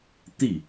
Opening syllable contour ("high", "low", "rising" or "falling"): falling